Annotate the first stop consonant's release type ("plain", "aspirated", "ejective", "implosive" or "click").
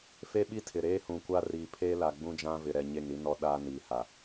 implosive